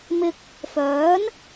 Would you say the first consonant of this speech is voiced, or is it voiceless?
voiced